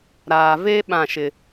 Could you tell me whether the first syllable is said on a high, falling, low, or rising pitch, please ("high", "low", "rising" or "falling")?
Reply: low